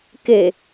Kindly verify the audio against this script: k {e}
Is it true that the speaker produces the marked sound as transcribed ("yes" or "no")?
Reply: yes